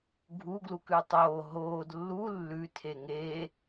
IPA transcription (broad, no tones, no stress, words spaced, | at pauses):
ɡʱuɡlukʉ tˤoː ɦoːd lːu lːʉtʰe ŋe